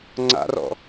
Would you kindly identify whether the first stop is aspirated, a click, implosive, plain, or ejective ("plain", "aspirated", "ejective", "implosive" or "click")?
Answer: click